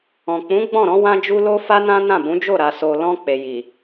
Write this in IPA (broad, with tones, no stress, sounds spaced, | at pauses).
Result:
ɔ̃˨ k͡p ũ˨˦ ɡ͡b ɔ̃˦˨ ɾ ɔ̃˨˦ w ã˧ d͡ʒ u˧ l o˧ f a˦ n ã˦ n ã˦˨ b ũ˨˦ d͡ʒ o˦˨ ɾ a˨ s o˨ l ɔ̃˧ k͡p e˨ j i˨